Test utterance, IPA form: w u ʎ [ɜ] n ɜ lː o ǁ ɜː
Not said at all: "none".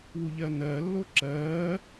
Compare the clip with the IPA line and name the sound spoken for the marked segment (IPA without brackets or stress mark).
ɜ